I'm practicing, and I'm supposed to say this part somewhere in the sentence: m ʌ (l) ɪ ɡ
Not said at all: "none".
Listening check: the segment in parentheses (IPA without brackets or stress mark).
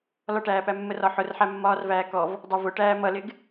l